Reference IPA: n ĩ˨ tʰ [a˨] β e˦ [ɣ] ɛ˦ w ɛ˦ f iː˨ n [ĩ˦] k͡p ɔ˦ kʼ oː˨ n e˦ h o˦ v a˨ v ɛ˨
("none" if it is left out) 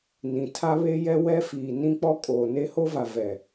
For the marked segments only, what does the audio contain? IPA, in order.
a˦, j, ĩ˦

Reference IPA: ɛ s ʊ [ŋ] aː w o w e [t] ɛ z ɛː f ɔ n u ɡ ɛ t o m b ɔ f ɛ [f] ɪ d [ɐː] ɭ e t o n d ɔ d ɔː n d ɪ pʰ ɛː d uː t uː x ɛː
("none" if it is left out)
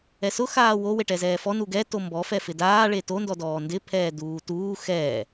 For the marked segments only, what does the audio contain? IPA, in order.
x, ʈ, f, aː

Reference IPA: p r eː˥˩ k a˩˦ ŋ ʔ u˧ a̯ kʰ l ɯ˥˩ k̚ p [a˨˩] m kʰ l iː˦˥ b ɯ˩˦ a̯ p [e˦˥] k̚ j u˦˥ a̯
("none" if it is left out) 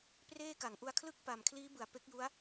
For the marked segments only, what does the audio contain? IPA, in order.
a˨˩, e˦˥

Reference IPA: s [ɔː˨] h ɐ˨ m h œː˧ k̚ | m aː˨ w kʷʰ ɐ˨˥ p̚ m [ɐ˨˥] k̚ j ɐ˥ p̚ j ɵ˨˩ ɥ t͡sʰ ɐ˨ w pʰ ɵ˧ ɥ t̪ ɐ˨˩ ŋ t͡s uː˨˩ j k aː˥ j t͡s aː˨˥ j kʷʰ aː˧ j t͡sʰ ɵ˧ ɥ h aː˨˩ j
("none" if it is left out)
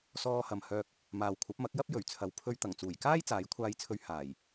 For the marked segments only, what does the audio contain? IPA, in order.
ɔː˧, ɐ˨˥

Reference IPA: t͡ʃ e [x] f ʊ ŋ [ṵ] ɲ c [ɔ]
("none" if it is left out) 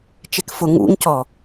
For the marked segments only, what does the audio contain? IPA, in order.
k, ṵ, ɔ

